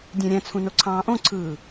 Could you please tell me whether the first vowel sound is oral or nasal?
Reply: nasal